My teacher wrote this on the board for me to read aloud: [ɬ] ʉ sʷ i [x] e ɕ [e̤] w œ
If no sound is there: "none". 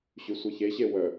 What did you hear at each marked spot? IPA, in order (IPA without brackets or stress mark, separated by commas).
ɕ, ç, e